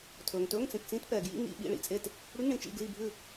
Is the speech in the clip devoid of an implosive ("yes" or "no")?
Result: no